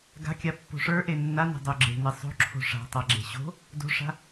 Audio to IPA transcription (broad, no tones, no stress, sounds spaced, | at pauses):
ɡ a̤ kʲ a pː o̤ ʂ ə˞ ʔ e nː a n e̤ dˤ o ɡ͡ǁ e̤ n e sˤ o̤ ǁʰ o̤ ʂ a̤ tˤ a ɡ͡ǁ e̤ ɕ o̤ | d o̤ ʂ a̤